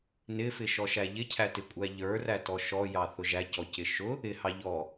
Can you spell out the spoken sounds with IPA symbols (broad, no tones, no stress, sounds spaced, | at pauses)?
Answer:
n ɪ f ɪ ʃ ɔ ʃ æ ʎ ɪ cʰ æ t ɪ kʷʼ æ ʎ ə˞ r æ t ɔ ʃ ɔ j ɑ θ ʊ ʒ æ c ɔ c ɪ ʃ ʊ | ɪ h ɑ ʎ ɔ